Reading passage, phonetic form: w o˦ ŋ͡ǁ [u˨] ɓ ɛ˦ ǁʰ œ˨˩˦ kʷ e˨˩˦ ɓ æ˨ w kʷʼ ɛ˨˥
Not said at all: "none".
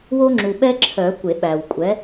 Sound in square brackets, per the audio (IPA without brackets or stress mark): u˨